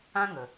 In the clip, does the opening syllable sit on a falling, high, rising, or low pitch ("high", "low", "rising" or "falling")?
high